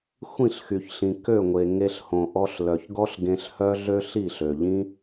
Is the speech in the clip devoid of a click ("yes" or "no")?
yes